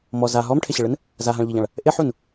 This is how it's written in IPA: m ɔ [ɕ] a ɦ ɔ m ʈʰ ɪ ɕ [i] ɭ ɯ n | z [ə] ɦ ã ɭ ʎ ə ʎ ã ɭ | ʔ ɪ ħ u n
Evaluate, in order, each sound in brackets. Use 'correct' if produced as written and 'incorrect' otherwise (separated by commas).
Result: incorrect, incorrect, incorrect